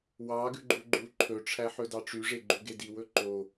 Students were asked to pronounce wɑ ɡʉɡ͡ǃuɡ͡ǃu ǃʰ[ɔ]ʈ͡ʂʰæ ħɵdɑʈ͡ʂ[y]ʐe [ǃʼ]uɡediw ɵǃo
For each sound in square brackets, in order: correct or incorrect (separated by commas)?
incorrect, correct, incorrect